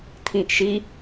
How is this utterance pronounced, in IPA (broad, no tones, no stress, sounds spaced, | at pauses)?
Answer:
t̪ʰ ĩ ʔ ʃ i